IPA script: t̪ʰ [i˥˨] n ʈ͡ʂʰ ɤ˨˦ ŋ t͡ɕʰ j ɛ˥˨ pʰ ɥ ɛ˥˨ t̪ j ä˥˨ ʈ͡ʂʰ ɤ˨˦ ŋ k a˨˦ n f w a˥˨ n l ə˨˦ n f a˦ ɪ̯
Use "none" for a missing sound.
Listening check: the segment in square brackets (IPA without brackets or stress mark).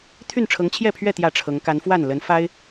y˥˨